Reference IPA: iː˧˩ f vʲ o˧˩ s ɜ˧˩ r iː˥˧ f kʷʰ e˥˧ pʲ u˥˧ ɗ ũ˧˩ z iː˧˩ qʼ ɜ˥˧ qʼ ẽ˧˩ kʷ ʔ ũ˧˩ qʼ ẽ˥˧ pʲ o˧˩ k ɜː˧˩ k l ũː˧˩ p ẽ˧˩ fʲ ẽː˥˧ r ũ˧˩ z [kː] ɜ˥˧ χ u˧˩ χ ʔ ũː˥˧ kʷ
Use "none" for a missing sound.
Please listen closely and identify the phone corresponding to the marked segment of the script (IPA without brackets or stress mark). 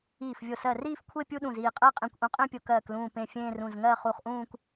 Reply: ŋ